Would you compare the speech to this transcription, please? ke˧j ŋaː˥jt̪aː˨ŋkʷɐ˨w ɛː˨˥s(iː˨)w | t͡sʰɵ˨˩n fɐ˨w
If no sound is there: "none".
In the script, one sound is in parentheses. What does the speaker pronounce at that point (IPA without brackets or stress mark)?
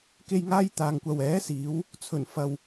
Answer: iː˨˧